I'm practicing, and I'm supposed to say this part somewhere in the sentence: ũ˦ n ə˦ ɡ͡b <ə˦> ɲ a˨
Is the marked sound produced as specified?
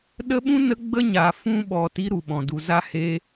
yes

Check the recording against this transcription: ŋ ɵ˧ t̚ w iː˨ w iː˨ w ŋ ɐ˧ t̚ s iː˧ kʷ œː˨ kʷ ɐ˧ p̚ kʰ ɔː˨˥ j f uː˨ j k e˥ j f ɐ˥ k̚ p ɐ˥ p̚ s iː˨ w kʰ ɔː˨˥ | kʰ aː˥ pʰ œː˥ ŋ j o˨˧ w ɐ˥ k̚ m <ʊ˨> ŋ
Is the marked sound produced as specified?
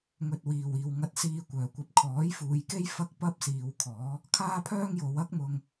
no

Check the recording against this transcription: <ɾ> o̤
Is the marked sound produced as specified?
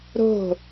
yes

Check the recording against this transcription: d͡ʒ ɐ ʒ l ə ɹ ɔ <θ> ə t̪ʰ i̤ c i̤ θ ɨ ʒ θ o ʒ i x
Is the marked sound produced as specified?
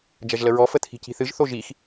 no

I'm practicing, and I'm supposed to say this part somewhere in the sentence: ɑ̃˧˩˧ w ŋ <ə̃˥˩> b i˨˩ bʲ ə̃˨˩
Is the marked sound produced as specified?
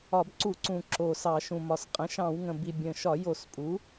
no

